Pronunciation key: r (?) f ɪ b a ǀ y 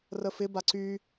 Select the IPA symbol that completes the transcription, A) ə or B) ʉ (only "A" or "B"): A